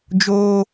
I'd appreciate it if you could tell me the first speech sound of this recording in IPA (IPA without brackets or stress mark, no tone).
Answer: d͡ʒ